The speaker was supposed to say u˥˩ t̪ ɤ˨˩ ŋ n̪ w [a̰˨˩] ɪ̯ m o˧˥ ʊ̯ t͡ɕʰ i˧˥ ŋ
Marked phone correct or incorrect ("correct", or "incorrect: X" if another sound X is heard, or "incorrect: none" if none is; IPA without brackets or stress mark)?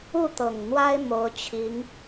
incorrect: a˥